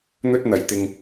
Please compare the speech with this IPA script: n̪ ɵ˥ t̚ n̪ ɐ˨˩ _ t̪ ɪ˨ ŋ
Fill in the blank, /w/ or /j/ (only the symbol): j